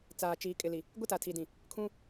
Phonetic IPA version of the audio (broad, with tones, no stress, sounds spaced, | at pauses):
t͡s aː˨ t͡ʃ iː˨ kʼ ɪ˨ l i˨ | ɡʷ ɪ˦ t a˨ tʰ i˨ d ĩ˨ | kʰ ũ˦